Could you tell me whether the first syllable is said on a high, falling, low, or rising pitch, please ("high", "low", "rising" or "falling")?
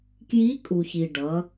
rising